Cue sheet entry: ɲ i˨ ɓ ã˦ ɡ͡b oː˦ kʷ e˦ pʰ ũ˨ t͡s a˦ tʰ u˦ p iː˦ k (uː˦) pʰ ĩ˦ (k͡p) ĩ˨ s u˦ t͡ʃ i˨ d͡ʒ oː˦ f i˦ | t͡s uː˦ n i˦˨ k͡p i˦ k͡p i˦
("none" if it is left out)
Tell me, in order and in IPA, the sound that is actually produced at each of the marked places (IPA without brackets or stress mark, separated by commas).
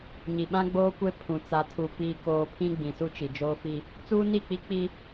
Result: oː˦, ɡ͡b